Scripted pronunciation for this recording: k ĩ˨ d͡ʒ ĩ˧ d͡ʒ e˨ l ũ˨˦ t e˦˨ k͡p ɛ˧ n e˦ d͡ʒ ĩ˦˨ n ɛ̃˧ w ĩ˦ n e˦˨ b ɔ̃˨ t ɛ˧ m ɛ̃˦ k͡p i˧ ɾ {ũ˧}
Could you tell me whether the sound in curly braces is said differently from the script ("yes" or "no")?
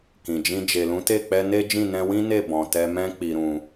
no